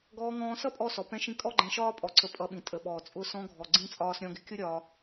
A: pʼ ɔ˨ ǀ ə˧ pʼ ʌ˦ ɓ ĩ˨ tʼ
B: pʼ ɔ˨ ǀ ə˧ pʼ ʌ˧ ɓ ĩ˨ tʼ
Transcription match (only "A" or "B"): B